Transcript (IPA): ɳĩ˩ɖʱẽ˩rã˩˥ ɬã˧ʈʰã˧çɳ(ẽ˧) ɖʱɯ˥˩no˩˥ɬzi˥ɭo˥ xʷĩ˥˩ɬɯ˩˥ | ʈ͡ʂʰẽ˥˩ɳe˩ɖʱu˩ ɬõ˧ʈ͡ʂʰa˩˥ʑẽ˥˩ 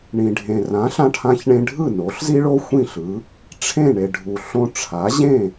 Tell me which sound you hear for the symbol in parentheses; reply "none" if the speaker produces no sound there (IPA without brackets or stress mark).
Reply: ẽ˧